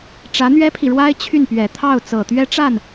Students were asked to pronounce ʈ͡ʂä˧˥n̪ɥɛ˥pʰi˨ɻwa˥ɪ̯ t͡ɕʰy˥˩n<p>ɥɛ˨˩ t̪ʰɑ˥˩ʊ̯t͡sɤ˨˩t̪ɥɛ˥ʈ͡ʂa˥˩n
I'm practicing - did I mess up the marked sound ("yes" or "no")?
no